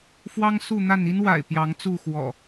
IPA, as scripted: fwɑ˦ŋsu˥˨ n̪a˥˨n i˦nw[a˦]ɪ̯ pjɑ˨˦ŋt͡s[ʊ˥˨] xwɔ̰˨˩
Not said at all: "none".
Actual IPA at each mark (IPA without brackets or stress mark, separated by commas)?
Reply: a̰˨˩, u˥˨